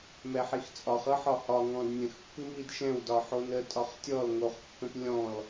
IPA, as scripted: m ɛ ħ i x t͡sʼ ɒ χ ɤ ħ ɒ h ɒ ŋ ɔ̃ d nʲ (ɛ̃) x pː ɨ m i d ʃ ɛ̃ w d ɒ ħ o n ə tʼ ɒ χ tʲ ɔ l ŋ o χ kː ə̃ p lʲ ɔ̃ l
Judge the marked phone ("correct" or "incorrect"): incorrect